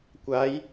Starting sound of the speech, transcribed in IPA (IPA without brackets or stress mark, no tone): kʷ